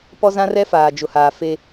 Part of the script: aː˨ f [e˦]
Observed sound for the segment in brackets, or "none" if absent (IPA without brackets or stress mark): e˦